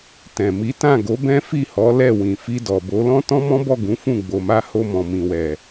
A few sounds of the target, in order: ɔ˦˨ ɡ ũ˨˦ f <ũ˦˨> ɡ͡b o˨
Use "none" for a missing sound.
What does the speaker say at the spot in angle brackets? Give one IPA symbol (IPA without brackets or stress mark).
ũ˦˨